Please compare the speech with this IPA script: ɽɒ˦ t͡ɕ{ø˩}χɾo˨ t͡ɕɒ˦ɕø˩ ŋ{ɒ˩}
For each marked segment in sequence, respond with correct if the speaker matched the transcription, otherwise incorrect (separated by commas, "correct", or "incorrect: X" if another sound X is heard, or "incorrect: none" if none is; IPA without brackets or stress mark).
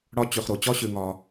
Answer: correct, correct